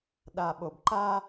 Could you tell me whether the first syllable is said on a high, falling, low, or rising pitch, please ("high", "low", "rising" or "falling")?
low